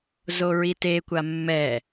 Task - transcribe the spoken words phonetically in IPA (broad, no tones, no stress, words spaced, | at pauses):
zoɹitekʷa mːɛ